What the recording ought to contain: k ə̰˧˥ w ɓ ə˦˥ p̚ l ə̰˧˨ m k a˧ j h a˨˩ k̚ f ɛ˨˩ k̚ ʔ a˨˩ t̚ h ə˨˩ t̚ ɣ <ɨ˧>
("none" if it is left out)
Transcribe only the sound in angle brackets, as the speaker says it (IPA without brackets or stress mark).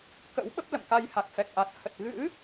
ɨ̰˧˥